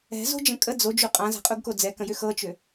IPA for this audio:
ɛ̤ z o̤ d͡ʒ ə̃ kʼ ə d͡z o d͡ʒ u qʼ ã z a̤ qʼ u ɡ k o d͡z ɛ k ə̃ j ʏ x ɤ t͡ʃ ʏ

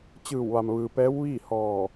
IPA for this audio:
t͡ɕ ɯː˧˩ w ʋ a˩ m ʋ ɯː˩ p ɛː˧˥ w ʋ iː˥˨ h ɔː˧˩

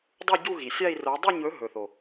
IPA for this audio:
dˤ u˥˧ ɟ u˥˧ ɣ i˨˩ sʲ a˥˧ i̯ r o˨˥ dˤ u˥˧ ɲ ɵ˨˥ ɦ ɵ˨˩ θ o˨˩

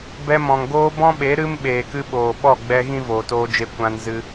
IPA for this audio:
b ɛ˧ m ɔ̃˨ ŋ ɡ oː˧ b ɔ̃˦ ɓ e˨˦ ɾ ɨ˦ m ɓ eː˨ k ɨ˧ ɓ oː˨ ɓ ɔ˦˨ ɡ͡b ɛ˧ ɣ ĩ˦ v oː˨ t oː˧ d͡ʒ e˧ kʷ ã˧ n z ɨ˧

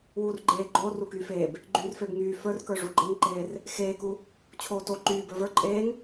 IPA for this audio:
w uː r ɡ͡ǃ eː ɡ͡ǃ oː r u k yː f eː b | ɡ͡ǃ y r f e b ŋ yː f ə˞ r k ə˞ ʐ u ɡ͡ǃ e ŋ ǃ eː r | x eː k u | t͡ɕʰ oː t o ǃ yː b ə˞ v ə˞ ǃʼ eː ŋ

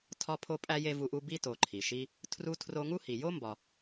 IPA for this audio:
tʰ ɒ˥ pʰ o˥ pʼ æ˥ j e˥ v u˦ ʔ u˥ b i˥ t o˨ ǃʰ i˩ ʃ i˦ | tʰ r u˦ tʰ r o˦ ŋ u˥ h i˨ j o˥ m b ɒ˨

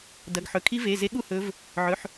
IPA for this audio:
d ɐ˩˧˩ ɡ ħ ɵ˩˧˩ kʰ i˦˥ v e˩˧˩ z e˦˥ ɠ u˥˧ h ɵ˨˦ v | ʕ ɵ˩˧˩ ħ

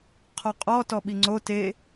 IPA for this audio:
qʰ ɔ qʼ ɔ t ɔ ɓ i ŋ͡ǀ o t e

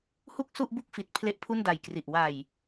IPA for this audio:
h u˥˩ k̚ s u˥˩ ʔ b u˥˩ k̚ f i˨˩ t̚ pʰ l e˦˥ ʔ pʰ u˥˩ n d a˨˩ j k r i˨˩ ʔ w a˨˩ j

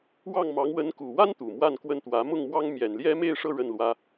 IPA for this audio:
w ɑ˥˩ ŋ m ɑ˧˥ ŋ w ə˧˥ n k u˨˩ w a˥ n t̪ u˨˩ m w a˥˧ n k w ə˥˩ n t̪ w ä˧˥ m ʊ˥˩ ŋ m w ɑ˥ ŋ m j ɛ˨˩ n l j ɛ˥ m e˥˧ ɪ̯ ʂ ɤ˥˧ ɻ ə˥˩ n l w ä˥

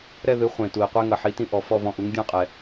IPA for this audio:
ɾ ɛ˥˧ ð ɨ˩˥ χʷ ẽ˩ t u˩ i̯ qʷ e˧ ŋ ɐ˩ ħ i˩˥ t ĩ˧ ʔ ɔ˩ f ɔ˥˧ v ɔ̃˧ ʔ u˩˥ ŋ dʲ ɔ̃˥˧ qʼ ɛ˩

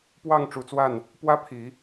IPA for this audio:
p w ɑ˥˨ ŋ ʈ͡ʂ u˨˦ t͡s w a˥˨ n | p w ä˦ pʰ i˨˦

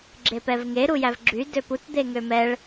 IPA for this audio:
ɡ͡ǁ e p ɛ v ŋ e ɾ u j æ v ɡ͡ǁ y d ø p u t d̪ e ŋ ø m ɛ ɭ

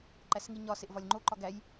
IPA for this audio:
ǃ æ s ŋ i ɲ ɒ s e ʔ v ɒ lʲ ŋ͡ǃ o ǃ ɒ ɡ æ j

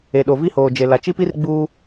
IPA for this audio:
e˨ ɗ o˨ v i˦ h oː˨ d͡ʒ e˨ l a˨ t͡ʃ i˦ p i˦ r ɡ͡b uː˦

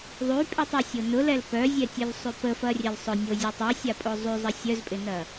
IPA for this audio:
ðˤ y pʼ y tˤ œ sʲ o n ʊ l ɛ l p œ zʲ ɛ tʲ œ l sˤ y p ə f ɐ rʲ ɛ l sˤ ʊ nʲ o zʲ ə tˤ y sʲ a pʼ o zˤ y zˤ ə sʲ œ z pʼ ɪ n ɐ

